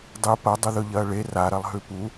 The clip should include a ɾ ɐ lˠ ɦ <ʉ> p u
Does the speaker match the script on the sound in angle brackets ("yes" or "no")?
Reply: yes